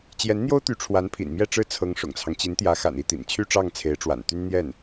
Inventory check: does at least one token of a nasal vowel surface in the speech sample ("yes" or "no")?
no